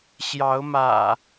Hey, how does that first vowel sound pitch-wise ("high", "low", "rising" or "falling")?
rising